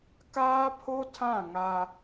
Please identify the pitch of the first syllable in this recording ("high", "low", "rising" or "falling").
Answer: high